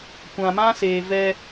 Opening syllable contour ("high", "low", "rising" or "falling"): low